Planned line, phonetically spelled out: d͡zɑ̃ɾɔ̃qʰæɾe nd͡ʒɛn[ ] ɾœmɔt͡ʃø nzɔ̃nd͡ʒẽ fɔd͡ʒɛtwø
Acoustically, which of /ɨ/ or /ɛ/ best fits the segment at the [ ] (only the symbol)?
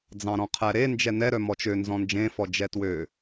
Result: ɛ